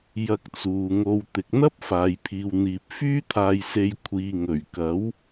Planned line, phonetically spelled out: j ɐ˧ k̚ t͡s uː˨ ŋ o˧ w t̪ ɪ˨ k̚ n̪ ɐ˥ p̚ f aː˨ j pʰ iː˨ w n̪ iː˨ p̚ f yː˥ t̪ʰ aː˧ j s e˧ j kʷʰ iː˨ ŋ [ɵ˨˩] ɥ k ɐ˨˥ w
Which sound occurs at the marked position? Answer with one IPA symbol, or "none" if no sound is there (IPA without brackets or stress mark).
ɵ˨˩